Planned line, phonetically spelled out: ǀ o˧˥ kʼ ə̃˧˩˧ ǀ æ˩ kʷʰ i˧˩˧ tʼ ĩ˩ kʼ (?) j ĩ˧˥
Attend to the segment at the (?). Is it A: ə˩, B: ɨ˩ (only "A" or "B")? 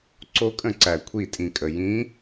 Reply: A